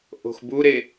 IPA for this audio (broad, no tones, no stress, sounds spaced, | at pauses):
ʔ o̤ x b u ɾ e